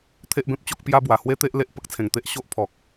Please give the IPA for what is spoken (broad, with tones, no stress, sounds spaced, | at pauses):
t̪ʰ e˦ ʔ b ẽ˦ p̚ t͡ɕ o˦ k̚ p j a˦ b w a˨˩ h w e˦ t̪ e˦ ʔ l e˦ ʔ p ə˦ k̚ t͡sʰ ẽ˨˩ ŋ t̪ e˦ ʔ ɕ o˦ ʔ pʰ ɔ˨ k̚